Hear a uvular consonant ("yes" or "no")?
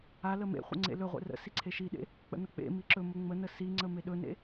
yes